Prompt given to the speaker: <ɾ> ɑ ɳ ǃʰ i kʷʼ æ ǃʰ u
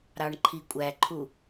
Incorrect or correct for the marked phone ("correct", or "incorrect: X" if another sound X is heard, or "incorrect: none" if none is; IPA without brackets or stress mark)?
correct